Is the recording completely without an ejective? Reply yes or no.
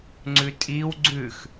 no